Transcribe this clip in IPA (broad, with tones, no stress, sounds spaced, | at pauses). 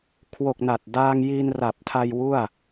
kʰ w o˨˩ k̚ n a˨˩ t̚ d aː˧ ŋ j i˧ n r a˨˩ p̚ tʰ a˧ j w u˥˩ a̯